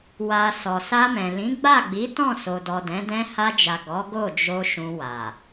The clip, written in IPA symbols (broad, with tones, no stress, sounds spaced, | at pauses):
w a˨ s ɔ˨ s a˧ m ɛ̃˨ l ĩ˨˦ ɡ͡b a˦˨ ɡ͡b i˨˦ t ɔ̃˦˨ s o˨ d ɔ˨ d ɛ̃˨˦ d ɛ̃˧ h a˧ d͡ʒ a˨ ɡ ɔ˨˦ ɡ o˦˨ d͡ʒ o˧ ʃ ũ˧ w a˨